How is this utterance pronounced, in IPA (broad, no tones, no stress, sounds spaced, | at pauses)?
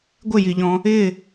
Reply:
ɡʷ ɪ j i ʎ ɔ̃ | ɪ